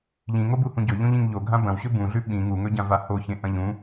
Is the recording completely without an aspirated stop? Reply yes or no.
yes